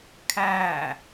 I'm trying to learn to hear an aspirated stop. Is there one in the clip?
yes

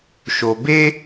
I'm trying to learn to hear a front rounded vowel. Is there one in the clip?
no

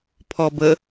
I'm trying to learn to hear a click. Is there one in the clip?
no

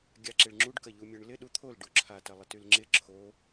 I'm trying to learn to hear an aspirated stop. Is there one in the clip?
yes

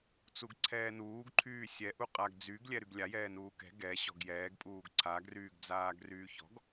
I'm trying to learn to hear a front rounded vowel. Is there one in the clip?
yes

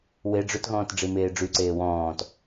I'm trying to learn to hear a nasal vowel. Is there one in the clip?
yes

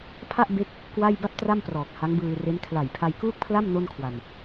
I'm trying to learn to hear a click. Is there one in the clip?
no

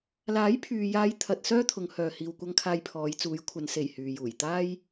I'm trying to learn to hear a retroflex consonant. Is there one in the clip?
no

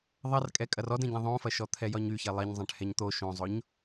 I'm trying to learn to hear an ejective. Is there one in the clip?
yes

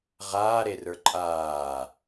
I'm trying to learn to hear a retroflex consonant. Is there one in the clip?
no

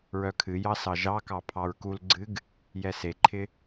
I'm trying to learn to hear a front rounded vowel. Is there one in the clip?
yes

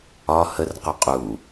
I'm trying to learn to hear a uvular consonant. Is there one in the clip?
yes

